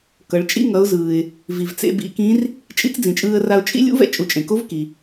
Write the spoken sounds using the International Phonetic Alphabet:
kʌ˩˧ɭt͡ʃʼḭ˥ ŋʌ˩˧ʊ̯zɯː˩ɪ̯ | vi˩vt͡sḛ˧ bḭ˧kĩ˧˥r | t͡ʃʼḭ˧˥t͡sd͡zĩ˩t͡ʃʼɯː˧ə̯ra˧ʊ̯ t͡ʃʼḭ˥ lʲṵ˥vɛ̰˥ t͡ʃʼu˩˧t͡ʃʼẽ˩ko˧˥v ki˩

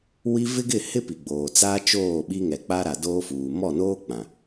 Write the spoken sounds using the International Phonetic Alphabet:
wi˦ vɪ˦ɡɪ˦˨hɪ˦ pi˨ɡ͡boː˨ t͡saː˦ t͡ʃoː˦˨ɓi˦ŋɛ˨ k͡pa˦ɾa˨doː˦fuː˨ mɔ˦˨noː˦ k͡pã˨

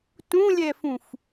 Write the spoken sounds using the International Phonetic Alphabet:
tũlʲɛfũf

